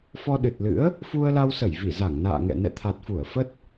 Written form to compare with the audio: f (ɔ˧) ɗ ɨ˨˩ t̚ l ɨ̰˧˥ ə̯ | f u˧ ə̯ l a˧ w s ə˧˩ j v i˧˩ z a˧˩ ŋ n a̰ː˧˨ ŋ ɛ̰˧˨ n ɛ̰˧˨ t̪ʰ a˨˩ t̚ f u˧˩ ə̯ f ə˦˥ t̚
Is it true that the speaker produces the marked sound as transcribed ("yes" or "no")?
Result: yes